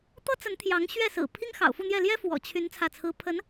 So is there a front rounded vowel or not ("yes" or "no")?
yes